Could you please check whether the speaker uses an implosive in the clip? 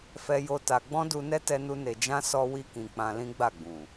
no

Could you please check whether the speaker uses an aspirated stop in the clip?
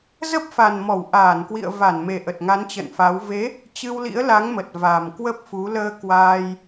no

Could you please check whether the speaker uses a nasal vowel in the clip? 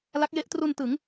no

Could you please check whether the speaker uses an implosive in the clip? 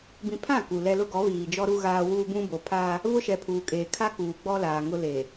no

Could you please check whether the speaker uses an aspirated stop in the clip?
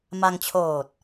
yes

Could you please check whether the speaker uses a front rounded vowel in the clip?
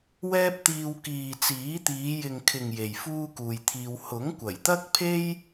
no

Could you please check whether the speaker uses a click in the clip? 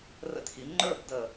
yes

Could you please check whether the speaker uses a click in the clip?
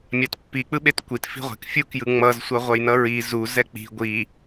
no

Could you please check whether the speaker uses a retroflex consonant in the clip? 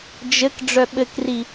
yes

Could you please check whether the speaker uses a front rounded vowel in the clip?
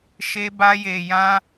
no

